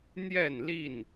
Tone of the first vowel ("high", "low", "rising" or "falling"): falling